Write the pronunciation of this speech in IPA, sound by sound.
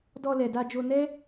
d ɔ˧ l ɛ˨ d a˧ d͡ʒ o˧ n ɛ˦

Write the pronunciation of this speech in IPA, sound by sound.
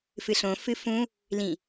f ɨ ɬ õ f ɨ f ũ | l ĩ

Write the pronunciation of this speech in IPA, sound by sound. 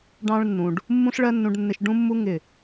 ɖ ɑ̃˦ ɭ nː ũ˨ ɖ | mː ũ˦ ɬ ɭ ɜ˦ nː ũ˧ ɖ nː ɪ˧ ʃ ɖ ũ˦ mː u˦ ŋ ɪ˦˨

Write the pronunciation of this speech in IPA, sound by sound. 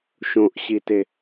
ʃ õ ʔ ɕ i t e

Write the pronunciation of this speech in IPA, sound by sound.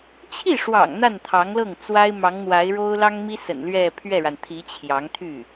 t͡ɕʰ i˥˩ ʂ w ɑ̰˨˩ ŋ n̪ a˥˩ n t̪ʰ ɑ˧˥ ŋ l ɤ˥˩ ŋ t͡s w a˥ ɪ̯ m ɑ˧˥ ŋ n̪ w a˧˥ ɪ̯ ɻ o˥ ʊ̯ l ɑ˥ ŋ m i˥ s ə̰˨˩ n l ɥ ɛ˥˧ pʰ ɥ ɛ˥˩ ɻ a˩ n t̪ʰ i˧˥ t͡ɕʰ j ɑ˧˥ ŋ t̪ʰ y˥˩

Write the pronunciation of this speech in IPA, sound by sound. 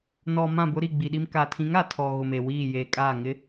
n ɔ˨ m ã˦˨ b ʊ˦ ɾ i˦˨ ɡ͡b i˨ ɗ i˦ m k aː˨ tʰ ĩ˨˦ ŋ a˨ tʰ ɔ˨ ɣ ʊ˨ m e˨ w iː˦˨ j eː˨ kʼ aː˦˨ ŋ ɪ˨˦

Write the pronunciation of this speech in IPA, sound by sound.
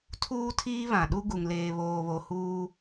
tʰ uː˦ tʰ iː˦ β ã˨ ɗ u˦ ɡ u˨ ŋ l eː˨ β oː˨ β o˨ h uː˦

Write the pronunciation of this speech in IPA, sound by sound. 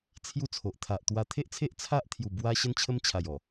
t͡sʰ j u˥˧ t͡sʰ o˨ ʔ t̪ʰ a˨ ʔ t̪ w a˧ t̪ʰ e˦ ʔ t͡sʰ e˦ ʔ t͡sʰ a˦ ʔ t̪ʰ j u˨˩ b w a˧ ɕ ə˦ n t͡ɕʰ ə˦ m t͡ɕʰ a˨˩ j ɔ˨˩

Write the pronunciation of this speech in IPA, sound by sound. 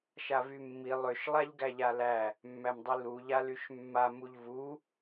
ʃ a v y mː i lˠ ø ʃ lˠ a ʎ ɡ æ ʎ a l æ | mː æ m dˤ i l u ʎ a l y ʃ mː a m u ʎ v u

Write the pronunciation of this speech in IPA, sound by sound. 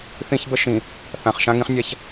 θ ĩ˦ ç b ə˦ ʃ ĩ˨ | θ ã˨ χ ʃ ã˦ ŋ ĩ˦ χ nʲ a˦ ç

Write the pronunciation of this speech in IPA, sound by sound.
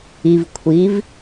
i˨ v kʷʰ i˨˦ v

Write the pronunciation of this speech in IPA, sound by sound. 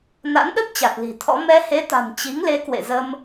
n a̰˧˥ n ɗ ə˦˥ p̚ t͡ɕ a˨˩ t̚ l i̤˨˩ t̪ʰ ɔ̰˧˥ m ɛ˧ h e˨˦ t̪ a̤˨˩ n t͡ɕ i˨˦ ŋ l e˨˦ k w ḛ˧˨ z ə˧ m

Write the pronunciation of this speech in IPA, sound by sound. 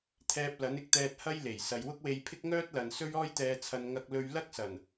t̪ʰ ɛː˧ p̚ l ɐ˨˥ n ɪ˧ k̚ t̪ ɛː˧ t̚ h ɐ˥ j l e˨˩ j s ɐ˨ j w ʊ˥ k̚ w e˧ j pʰ ɪ˥ k̚ ŋ œː˥ t̚ l ɐ˨ n s ɵ˥ ɥ ɔː˥ j t̪ ɛː˧ t͡sʰ ɐ˧ n ŋ ɐ˥ k̚ l ɵ˥ ɥ l ɐ˥ k̚ s ɐ˨˩ n

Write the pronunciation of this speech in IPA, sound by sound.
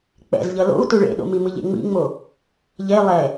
k͡p ɛ̰ z ʎ ʌ l o̰ u̯ t u ɭ ḛ ɗ o̰ m i m ɯ ʎ ḛ ŋ͡m ḭ ŋ͡m o | ʎ e lˠ ɛ

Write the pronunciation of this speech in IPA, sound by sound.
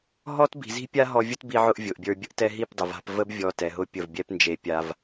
ɦ ɔ˦ t b i̤˨ z i̤˦ pʲ a˦ ɦ ɔ˧ vʲ ʊ˦ t b i˧ ʕ ʊ˧ ʔ vʲ ʊ˨ ʔ bʲ ə˞˧ bʲ ə˧ ʔ t ɛ˧ ɦ i˦˨ p dˤ ə˨ v a̤˧ p v ə˦ b vʲ ɔ˧ t ɛ˨ ɦ ʊ˦ pʲ ə˦˨ v bʲ ɛ˦ p n d͡ʒ e˧ pʲ a˧ v

